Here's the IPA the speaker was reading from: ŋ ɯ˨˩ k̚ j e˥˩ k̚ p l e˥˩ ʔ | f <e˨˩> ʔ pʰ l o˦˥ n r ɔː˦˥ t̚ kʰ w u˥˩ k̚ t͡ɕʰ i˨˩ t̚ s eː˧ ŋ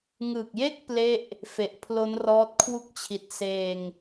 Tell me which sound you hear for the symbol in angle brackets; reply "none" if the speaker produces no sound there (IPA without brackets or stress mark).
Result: e˨˩